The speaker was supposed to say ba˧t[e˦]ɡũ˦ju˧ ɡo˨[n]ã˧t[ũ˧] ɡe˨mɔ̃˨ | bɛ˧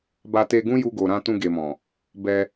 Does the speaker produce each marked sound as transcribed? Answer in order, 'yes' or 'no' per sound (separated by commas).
no, no, yes